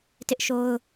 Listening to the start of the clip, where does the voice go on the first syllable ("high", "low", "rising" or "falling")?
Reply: high